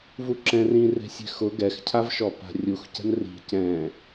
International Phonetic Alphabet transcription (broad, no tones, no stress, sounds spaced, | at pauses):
v u ǁ ɛ̃ r ĩ r e̤ sʲ ɛ̤ x ʊ ɡ ɛ x cʰ a v ʃ ɔ p a̤ rʲ u x c ɛ̤ n r i̤ c ɛ̃